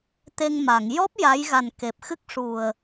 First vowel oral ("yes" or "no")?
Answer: yes